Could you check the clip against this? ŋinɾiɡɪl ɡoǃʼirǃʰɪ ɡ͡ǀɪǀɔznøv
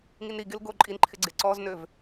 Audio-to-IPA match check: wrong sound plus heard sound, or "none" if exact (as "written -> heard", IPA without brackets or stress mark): r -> n